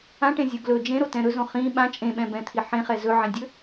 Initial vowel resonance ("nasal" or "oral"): nasal